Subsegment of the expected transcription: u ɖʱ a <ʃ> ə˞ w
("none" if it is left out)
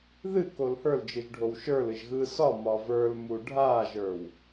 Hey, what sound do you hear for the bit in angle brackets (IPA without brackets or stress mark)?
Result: ʒ